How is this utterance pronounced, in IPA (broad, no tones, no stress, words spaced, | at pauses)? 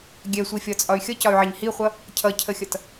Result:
ɡʲɛsʷifʲɒt͡sʼɒy̯ xʲʌcɒy̯ʕɛɲ hiχʷʌ | cʰʌcʰəxʲʌt